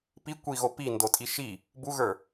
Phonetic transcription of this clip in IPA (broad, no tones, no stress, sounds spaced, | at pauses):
p i kʷ i ɣ o p i n d o tʼ i ʃ i | b u ɣ ə˞